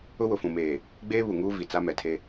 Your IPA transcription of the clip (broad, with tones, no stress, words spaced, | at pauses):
ʊ˦wʊ˨fũ˨meː˨ | ɡ͡beː˦βu˨ŋuː˦ vi˨t͡sa˦mɛ˨tʰe˦